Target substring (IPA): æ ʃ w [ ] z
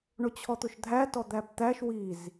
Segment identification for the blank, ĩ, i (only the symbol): i